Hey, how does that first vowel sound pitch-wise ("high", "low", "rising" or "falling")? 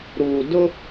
low